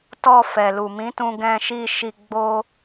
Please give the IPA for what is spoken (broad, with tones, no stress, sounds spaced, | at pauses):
t ɔ˧ f ɛ˨ l u˨ m ĩ˨˦ t ũ˧ ɡ ɛ̃˧ ʃ i˧ ʃ i˧ ɡ͡b o˦